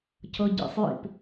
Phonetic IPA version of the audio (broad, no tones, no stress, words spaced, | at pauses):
cʰɤɟḭsˤjḭp